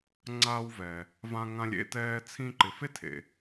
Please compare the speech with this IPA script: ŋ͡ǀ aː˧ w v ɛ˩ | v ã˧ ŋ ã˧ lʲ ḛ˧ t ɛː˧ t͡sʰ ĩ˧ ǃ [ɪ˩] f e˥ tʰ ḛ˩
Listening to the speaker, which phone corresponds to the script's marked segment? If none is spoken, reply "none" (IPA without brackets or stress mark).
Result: ɪ˩